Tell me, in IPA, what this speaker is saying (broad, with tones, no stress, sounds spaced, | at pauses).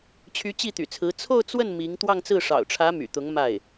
t͡ɕʰ y˧˥ t͡ɕ i˥˩ t̪ y̰˨˩ t͡sʰ ɹ̩˧˥ t͡sʰ o˥˧ ʊ̯ t͡s w ə˥˩ n m i˧˥ ŋ t̪ w ɑ˥˧ ŋ t͡s ɹ̩˥˩ ʂ ɑ̰˨˩ ʊ̯ ʈ͡ʂʰ ä˧˥ m y̰˨˩ t̪ ʊ˧˥ ŋ m a˥˩ ɪ̯